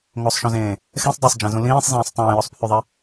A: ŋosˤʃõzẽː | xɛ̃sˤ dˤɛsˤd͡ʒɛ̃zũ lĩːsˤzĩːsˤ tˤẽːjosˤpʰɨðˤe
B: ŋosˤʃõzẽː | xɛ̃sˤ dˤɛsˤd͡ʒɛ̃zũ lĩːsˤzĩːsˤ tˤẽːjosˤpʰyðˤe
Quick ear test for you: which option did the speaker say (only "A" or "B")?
B